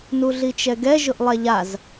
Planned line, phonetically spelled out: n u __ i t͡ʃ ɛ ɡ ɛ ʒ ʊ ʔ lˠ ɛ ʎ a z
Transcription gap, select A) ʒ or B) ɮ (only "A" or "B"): B